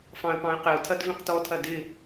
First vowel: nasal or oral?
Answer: nasal